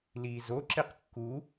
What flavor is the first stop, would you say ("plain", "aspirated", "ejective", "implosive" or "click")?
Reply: click